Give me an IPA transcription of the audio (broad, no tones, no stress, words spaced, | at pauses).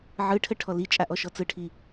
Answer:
ʕɯʈʰəʈʰɔ lit͡ʃʼaʔɔʃɔ t͡sɯʈʰi